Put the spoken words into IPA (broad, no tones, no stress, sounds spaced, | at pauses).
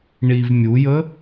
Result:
ɳ i v mʲ u j ə